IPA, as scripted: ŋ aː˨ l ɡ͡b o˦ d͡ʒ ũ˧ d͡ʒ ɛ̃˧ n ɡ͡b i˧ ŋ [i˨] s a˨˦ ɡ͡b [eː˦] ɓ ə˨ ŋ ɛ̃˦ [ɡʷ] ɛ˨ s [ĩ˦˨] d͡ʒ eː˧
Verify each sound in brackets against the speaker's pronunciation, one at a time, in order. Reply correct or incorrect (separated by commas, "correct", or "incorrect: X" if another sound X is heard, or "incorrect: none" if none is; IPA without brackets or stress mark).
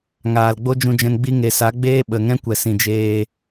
incorrect: e˨, correct, incorrect: kʷ, incorrect: ĩ˨